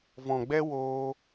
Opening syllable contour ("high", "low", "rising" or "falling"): low